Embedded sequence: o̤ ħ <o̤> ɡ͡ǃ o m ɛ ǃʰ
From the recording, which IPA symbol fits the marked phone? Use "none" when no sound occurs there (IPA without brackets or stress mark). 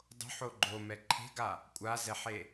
o